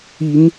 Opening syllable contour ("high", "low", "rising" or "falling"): rising